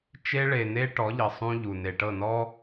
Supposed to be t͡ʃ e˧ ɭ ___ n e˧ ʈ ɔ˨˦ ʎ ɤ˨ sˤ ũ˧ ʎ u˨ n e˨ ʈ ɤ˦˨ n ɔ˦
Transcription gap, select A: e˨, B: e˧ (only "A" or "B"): A